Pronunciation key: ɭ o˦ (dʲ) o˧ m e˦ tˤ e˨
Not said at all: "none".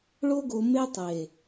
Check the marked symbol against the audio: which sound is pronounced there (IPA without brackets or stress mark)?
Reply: ɡ